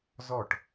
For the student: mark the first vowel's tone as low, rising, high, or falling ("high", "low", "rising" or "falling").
falling